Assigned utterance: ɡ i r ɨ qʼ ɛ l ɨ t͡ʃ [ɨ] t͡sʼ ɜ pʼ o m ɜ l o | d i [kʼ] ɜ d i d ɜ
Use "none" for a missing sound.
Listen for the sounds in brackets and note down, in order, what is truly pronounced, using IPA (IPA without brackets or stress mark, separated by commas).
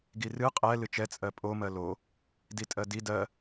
ɛ, tʼ